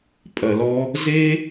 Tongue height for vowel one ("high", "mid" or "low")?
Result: low